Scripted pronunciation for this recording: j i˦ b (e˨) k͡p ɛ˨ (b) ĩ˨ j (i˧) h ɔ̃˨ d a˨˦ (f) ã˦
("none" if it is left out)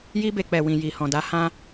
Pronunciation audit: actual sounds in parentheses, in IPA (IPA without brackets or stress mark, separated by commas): e˧, w, i˨, h